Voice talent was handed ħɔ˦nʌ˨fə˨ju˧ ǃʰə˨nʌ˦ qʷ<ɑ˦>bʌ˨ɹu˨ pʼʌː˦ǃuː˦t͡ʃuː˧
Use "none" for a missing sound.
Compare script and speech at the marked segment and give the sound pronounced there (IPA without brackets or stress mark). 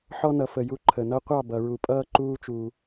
ɑ˦˨